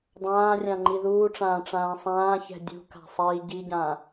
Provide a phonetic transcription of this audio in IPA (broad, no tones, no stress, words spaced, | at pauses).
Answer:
dˤãːrʲã ŋ͡ǃiðuːʈ͡ʂãː ʈ͡ʂãːsˤãːçɛ̤ dʲṳka̤ sˤiːɟiɟã